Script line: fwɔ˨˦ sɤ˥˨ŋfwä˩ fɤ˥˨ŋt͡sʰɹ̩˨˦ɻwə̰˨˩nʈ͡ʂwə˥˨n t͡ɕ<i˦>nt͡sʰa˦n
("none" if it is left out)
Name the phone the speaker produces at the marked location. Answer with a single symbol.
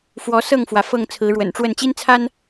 i˦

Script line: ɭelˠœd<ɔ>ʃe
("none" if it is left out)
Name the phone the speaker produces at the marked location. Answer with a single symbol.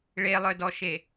ɔ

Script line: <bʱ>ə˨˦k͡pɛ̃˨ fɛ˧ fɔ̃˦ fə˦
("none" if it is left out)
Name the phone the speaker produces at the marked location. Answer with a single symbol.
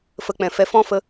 f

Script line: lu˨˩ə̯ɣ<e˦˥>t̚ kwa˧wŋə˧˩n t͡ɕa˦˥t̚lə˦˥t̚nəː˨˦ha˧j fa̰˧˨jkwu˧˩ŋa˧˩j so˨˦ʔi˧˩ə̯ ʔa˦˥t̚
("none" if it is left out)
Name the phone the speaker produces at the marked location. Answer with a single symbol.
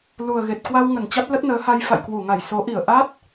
e˨˩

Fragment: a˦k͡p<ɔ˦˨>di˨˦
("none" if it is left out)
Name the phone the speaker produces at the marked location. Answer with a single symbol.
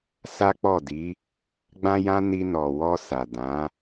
ɔ˦˨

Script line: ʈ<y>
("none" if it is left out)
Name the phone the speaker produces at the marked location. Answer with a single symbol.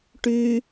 y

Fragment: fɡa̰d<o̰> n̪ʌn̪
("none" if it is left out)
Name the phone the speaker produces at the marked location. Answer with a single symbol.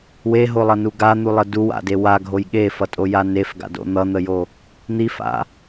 o̰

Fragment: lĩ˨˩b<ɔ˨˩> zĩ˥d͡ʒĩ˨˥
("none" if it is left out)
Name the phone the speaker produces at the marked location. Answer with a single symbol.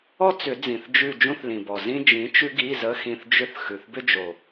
ɔ˨˩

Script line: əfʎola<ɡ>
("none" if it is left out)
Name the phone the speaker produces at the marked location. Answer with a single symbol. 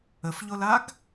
ɡ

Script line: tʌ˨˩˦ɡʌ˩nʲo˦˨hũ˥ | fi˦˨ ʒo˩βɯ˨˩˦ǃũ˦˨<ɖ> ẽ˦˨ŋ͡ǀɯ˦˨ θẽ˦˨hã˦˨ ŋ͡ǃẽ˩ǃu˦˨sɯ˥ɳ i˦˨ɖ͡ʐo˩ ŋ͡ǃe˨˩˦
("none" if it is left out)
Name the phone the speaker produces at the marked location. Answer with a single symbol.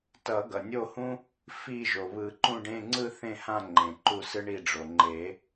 ɖ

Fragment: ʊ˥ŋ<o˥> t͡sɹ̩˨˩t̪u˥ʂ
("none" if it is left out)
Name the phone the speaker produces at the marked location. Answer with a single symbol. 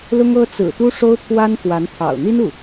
ɤ˥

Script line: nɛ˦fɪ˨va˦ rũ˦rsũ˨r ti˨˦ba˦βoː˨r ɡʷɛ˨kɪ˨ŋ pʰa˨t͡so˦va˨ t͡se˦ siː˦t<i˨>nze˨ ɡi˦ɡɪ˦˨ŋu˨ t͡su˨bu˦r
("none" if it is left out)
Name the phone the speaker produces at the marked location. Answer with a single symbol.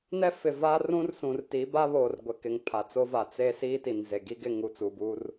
i˨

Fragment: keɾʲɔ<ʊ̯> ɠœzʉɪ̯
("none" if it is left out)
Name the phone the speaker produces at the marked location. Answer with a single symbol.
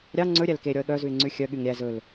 ə̯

